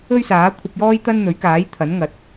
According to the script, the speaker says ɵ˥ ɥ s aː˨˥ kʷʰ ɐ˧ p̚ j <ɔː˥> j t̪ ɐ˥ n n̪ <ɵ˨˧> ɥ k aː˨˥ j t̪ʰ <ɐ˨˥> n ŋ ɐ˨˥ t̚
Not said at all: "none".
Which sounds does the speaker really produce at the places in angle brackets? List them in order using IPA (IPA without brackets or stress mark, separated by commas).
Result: ɔː˥, ɵ˨˥, ɐ˨˥